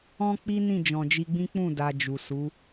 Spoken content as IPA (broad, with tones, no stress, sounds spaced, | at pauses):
ɔ̃˦ k͡p i˦ n ĩ˦˨ d͡ʒ ɔ̃˨ d͡ʒ i˧ ɡ͡b ĩ˦ k͡p ũ˦˨ d a˧ d͡ʒ u˨ s u˨˦